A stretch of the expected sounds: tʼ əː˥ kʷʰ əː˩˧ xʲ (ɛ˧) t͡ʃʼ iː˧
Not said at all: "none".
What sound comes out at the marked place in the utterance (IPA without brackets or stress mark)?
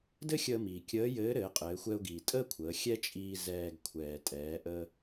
ɛ˥